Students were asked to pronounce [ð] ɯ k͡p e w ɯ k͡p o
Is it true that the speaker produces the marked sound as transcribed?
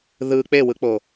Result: yes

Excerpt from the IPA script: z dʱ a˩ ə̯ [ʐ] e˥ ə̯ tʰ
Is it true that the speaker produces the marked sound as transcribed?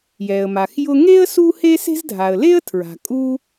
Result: no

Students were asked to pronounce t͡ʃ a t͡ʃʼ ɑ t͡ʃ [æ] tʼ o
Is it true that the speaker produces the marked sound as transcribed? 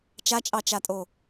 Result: no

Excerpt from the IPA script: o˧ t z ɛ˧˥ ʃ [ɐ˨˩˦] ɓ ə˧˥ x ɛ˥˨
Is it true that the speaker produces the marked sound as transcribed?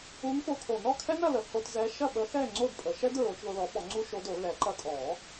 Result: no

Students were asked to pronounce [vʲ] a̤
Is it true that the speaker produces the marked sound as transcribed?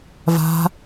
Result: no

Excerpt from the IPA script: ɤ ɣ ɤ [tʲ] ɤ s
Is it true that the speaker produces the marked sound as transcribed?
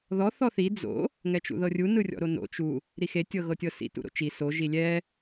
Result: yes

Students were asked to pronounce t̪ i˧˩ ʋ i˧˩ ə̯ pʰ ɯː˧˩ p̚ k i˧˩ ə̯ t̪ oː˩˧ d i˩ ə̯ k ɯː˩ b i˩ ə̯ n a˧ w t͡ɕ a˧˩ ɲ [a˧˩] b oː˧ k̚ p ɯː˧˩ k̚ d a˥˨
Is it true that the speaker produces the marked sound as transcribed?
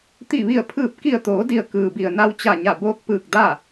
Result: yes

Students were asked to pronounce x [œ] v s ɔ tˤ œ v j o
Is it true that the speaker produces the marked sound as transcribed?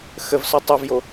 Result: no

